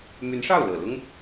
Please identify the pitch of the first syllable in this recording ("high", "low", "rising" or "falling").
rising